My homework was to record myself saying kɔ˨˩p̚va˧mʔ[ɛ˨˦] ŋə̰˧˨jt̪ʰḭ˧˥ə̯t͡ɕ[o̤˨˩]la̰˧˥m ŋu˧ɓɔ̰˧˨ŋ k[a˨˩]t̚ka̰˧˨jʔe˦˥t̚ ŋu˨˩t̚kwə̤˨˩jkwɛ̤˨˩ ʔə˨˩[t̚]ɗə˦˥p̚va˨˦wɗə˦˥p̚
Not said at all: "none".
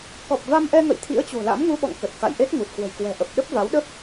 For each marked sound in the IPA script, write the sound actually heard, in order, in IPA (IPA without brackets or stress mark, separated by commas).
ɛ˧, o̤˨˩, ə˨˩, p̚